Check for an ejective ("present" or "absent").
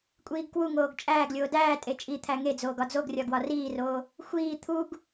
present